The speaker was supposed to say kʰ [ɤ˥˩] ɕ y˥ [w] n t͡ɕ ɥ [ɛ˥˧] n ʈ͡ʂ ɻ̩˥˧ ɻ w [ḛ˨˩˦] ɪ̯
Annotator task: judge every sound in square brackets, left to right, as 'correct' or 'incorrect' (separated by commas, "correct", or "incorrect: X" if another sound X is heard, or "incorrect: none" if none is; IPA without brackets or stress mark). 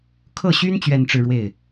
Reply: correct, incorrect: none, correct, incorrect: e˥˩